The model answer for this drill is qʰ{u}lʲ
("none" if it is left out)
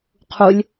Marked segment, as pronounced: u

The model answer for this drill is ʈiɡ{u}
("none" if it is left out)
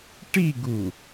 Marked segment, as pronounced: u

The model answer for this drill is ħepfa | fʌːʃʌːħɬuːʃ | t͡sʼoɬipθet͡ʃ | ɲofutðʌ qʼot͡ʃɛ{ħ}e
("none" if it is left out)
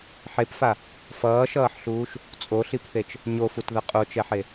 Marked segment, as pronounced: ħ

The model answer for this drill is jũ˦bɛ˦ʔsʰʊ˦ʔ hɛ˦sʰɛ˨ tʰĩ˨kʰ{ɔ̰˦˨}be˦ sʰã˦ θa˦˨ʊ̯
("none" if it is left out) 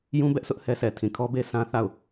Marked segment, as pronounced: ɔ˦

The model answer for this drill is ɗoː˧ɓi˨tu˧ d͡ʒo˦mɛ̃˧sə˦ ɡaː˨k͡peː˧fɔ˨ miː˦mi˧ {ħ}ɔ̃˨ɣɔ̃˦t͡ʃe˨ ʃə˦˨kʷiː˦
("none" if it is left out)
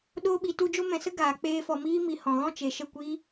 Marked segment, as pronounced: h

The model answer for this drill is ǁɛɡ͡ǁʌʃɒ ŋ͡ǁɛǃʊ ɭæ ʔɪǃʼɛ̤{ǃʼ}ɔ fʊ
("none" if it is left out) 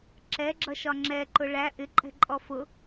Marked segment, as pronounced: ǃʼ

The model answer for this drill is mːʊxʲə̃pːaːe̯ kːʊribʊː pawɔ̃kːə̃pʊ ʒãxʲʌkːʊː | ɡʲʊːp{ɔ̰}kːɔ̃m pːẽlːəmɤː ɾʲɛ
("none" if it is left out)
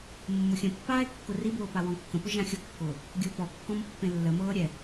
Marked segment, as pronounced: ɔ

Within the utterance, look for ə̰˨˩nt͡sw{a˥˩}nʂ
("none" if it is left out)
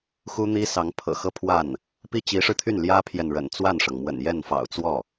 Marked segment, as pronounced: a˥˩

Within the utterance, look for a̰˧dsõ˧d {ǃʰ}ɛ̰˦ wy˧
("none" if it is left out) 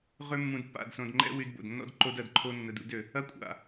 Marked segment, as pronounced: ŋ͡ǃ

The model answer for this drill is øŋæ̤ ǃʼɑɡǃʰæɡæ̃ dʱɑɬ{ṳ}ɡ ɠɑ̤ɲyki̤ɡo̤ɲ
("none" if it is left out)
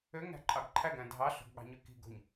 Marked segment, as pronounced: o̤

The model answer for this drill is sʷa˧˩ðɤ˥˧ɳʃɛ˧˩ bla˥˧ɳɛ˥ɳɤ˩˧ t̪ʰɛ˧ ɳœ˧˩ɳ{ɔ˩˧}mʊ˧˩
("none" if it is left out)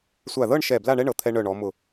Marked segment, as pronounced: ɔ˩˧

